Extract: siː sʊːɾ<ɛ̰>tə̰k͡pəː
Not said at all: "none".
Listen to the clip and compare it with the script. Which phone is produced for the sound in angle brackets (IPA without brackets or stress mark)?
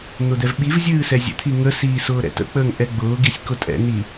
ɛ̰